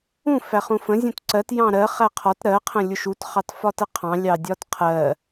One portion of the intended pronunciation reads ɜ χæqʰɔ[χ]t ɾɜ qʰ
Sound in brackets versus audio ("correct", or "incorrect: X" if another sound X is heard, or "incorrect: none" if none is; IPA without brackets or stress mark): incorrect: none